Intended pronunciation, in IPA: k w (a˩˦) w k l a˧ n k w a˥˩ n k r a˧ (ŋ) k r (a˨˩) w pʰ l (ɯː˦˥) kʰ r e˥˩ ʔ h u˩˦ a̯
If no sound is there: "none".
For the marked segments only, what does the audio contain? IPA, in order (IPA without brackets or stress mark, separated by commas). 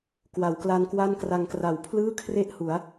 a˩˦, ŋ, a˨˩, ɯː˥˩